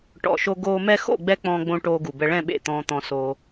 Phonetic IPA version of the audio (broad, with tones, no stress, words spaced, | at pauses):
ʈɔ̰˨ʃo˧ɡoː˧ mɛ˧xo̰˦˨ɡ͡bɛ˧ k͡pɔ̃ː˧ɡ͡bõ˧ ʈoː˧ɡu˨bɛ˧ ɭɛ̃˦˨ɓḛ˦˨ t̪ɔ̃ː˧t̪ɔ̃˧ soː˧